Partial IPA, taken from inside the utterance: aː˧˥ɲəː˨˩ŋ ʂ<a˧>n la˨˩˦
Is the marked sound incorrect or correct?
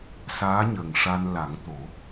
correct